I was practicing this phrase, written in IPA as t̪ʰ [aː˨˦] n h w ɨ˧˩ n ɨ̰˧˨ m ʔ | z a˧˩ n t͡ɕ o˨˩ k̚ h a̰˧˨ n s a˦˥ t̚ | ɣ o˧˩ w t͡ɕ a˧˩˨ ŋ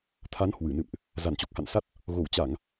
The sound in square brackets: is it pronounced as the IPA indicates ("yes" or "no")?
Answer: no